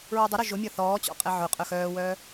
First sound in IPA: ɹ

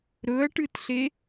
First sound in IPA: ɾ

